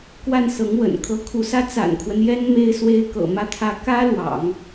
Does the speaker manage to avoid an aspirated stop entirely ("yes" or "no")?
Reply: no